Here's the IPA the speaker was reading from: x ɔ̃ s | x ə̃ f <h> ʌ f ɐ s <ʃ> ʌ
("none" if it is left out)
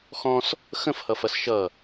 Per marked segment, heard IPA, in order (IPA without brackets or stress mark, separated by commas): h, ʃ